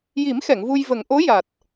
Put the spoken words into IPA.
j i˨˩˦ m x ɛ˨˩˨ ŋ v u˧ j v ə˨˩˦ ŋ ʔ o˧˥ j a˨˩ t̚

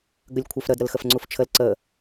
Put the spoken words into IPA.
ɡ ə lʲ kʷʰ œ f ɾ ə d ɾ ə l x ə f ŋ͡ǀ u f t͡ʃʰ ə l ǀ ə

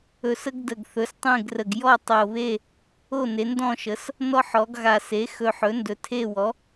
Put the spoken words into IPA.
ɵ˨˩ s ə˦ ɡ d ə˨˩ ɡ θ ɵ˩˥ s tˤ ẽ˦˨ ɡ r ə˨˩ ɡ j ɔ˦˨ tˤ o˨˩ β e˦˨ | o˦˨ n e˩˧ n d ɔ̃˦˨ ʃ ə˩˧ s | n ɔ˦ ħ ɔ˩˧ ɡ ɣ a˨˩ s e˩˥ x ɵ˨˩ ħ ɵ˩˥ n d ɵ˩˧ tʰ e˦˨ w ɔ˩˥

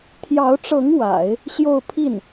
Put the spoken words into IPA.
t̪ʰ j ɑ˧˥ ʊ̯ ʈ͡ʂ ɤ˧˥ ŋ w a̰˨˩˦ ɪ̯ | ɕ j o˥˧ ʊ̯ pʰ i˥˩ n

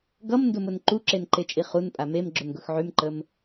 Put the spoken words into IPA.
ɡ ʌ m n d ʊ m ʊ n ǃ u ǁ e n ǃ e t͡ʃʼ i χ u n pʼ a m e m ɡ͡ǁ ʊ n ɡ ʊ x ʕ y m ǃ ə m

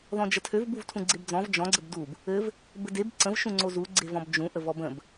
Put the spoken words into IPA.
ð ɔ̃ d͡ʒ ə tʰ ø v b u v tʰ ũ ɡ͡ǀ e b d͡z ɔ̃ v d͡ʒ ɔ̃ ɡ͡ǀ ə b d u b | ɘ v | b ɘ d e b ǀ ə̃ v ʃ ũ ŋ͡ǀ o z u ɡ͡ǀ e v ɔ̃ b d͡ʒ ũ ʔ ə v ɔ b ə̃ b

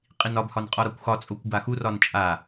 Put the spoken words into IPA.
qʼ i n ɒ b h ɒ n qʼ ɒ ɾ ɒ kʷ x ɒ t͡sʼ o kʷ b a x u r ɒ n t͡ʃʼ a

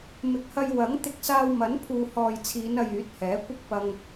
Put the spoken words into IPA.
m ɪ˨˥ k̚ h ɐ˧ j w ɐ˨˥ ŋ t̪ ɪ˧ k̚ s aː˧ w m ɐ˨˥ n pʰ uː˨ h ɔː˨ j t͡sʰ iː˨˧ n ɐ˨ j yː˨˥ t̚ h ɛː˨˥ kʷ ɪ˥ k̚ p ɐ˧ ŋ

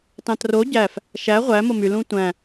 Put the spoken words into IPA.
t ɑ̃ t r o ɟ æ f | ʃ æ ʁʷ æ m o m y l ũ tʷ æ̃

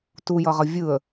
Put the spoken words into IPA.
t u j ʌ ʁ ʌ vʲ ɯ ə̯

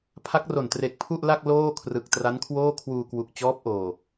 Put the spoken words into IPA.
pʰ a˦˥ k̚ r o˨˩ n t r e˨˩ k̚ pʰ u˥˩ ʔ l a˥˩ k̚ l oː˥˩ kʰ r ɯ˨˩ k̚ t r a˦˥ n kʰ w oː˥˩ kʰ w uː˧ k w u˨˩ k̚ t͡ɕ ɔː˦˥ p̚ ʔ oː˨˩

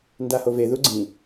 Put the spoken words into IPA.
n d a h o v e ð u ɡ͡ǀ ĩ

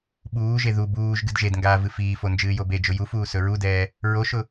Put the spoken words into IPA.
ɓ uː ʒ e ð u b uː ʒ ɡ ɨ d ʒ e d ŋ ɡ aː v ɨ f iː f o n d͡ʒ ɨː j o b e d͡ʒ ʊ j u f uː s ɵ ɹ u d ɛː | ɹ o ʃ ʊ

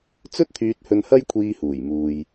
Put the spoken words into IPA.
t͡s ɵ˥ t̚ t̪ʰ yː˧ t̚ h ɵ˧ n h ɐ˥ j kʷʰ iː˧ h uː˨˩ j m uː˨ j

